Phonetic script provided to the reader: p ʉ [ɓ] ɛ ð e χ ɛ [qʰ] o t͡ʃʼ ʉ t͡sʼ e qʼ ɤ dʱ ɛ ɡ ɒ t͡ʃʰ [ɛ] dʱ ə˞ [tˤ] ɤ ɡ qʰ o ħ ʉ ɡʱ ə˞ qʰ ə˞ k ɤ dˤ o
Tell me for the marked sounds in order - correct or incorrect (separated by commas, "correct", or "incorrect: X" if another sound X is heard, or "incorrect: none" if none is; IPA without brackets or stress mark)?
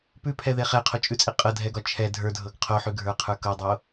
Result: incorrect: pʰ, correct, correct, incorrect: dʱ